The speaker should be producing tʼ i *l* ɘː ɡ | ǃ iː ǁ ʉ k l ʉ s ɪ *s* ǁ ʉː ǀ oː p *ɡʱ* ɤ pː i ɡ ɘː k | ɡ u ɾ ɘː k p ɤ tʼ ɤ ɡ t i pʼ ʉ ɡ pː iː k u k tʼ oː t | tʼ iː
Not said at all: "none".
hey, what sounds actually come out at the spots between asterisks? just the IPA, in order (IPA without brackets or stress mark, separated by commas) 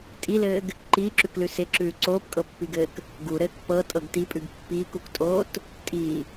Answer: l, none, kʼ